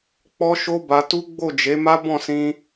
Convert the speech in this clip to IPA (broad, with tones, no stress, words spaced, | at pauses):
k͡pɔ˦ʃo˦ba˧tu˦ ɡ͡bo˦˨d͡ʒe˨˦ma˦ bɔ̃˦˨sĩ˧